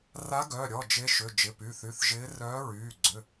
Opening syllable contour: rising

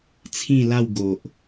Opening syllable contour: falling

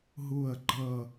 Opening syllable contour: falling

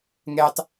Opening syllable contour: low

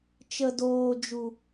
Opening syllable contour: low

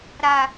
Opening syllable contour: low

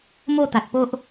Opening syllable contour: falling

